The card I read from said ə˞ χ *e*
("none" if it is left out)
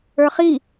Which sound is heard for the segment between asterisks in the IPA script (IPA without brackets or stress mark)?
i